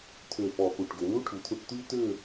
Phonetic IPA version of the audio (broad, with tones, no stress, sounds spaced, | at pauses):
t̪ʰ ø˧˩ f ɔ˧˩ x u˧˩ ʈ ɡ ø˩˧ n̪ u˥ ʈʰ u˩˧ t̪ʰ u˧ ʈ t̪ y˥ t̪ ø˥˧